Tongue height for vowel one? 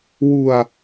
high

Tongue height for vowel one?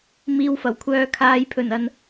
high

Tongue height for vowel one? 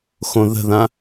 mid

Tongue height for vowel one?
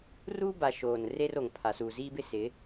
high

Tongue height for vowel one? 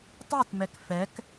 high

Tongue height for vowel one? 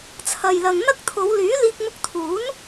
low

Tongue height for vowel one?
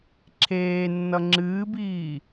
mid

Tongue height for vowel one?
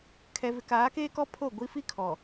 mid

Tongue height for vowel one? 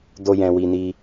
mid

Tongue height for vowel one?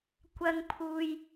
low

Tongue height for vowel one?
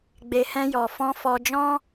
mid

